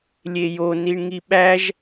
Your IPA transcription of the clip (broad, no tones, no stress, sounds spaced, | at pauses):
lʲ e j o n i ɳ ŋ i ɓ æ ʒ